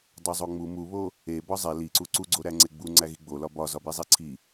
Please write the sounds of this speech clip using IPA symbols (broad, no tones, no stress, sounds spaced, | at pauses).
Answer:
dˤ o zˤ o ŋ͡m u m u β o | e b ɒ zˤ e l i ǀ u ǀ u ɡ͡ǀ o ɾ æ ŋ͡ǀ e ɡ͡b u ŋ͡ǀ æ ɣ i ɡ͡b o l ɒ b ɒ z ɒ b i zˤ i ǀʰ i